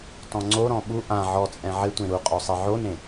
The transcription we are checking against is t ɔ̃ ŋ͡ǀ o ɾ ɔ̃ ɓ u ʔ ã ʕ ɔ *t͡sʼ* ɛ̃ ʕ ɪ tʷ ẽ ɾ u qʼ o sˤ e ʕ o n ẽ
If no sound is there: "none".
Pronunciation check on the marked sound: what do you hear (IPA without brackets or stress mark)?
t͡sʼ